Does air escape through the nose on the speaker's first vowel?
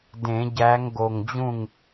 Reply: yes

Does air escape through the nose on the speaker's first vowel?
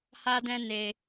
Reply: no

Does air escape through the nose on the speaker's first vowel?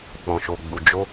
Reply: yes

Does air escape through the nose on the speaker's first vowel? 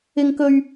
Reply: no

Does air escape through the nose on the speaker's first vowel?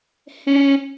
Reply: yes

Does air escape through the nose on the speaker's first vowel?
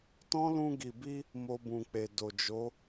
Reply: yes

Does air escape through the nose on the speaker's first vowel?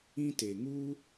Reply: yes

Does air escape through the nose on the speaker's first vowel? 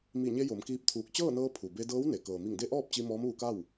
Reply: no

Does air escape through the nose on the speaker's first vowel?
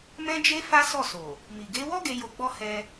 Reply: yes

